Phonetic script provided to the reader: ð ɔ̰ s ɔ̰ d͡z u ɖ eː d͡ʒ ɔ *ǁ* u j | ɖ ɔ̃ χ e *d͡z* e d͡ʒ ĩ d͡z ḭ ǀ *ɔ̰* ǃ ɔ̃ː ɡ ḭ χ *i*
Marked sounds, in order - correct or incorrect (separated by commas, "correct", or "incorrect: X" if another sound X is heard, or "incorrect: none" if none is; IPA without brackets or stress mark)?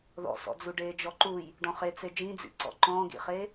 incorrect: ǃ, incorrect: t͡s, correct, incorrect: e